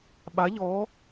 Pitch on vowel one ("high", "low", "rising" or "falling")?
rising